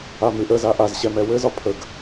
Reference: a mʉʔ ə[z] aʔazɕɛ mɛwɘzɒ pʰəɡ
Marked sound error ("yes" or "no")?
no